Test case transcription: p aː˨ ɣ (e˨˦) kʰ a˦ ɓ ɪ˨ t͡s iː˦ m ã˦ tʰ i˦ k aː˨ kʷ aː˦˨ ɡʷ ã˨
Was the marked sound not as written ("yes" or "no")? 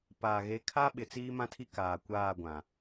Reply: no